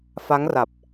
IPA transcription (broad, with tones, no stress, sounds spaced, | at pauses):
f a˦˥ ŋ r a˨˩ p̚